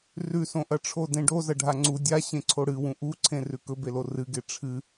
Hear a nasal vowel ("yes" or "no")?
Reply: yes